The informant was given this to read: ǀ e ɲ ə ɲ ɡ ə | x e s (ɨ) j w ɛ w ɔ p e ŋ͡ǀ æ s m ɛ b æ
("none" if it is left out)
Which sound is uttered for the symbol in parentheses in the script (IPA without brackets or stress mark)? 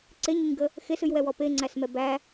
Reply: ɨ